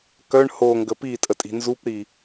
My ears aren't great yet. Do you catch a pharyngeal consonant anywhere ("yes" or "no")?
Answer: no